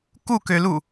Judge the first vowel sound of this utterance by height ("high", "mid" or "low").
high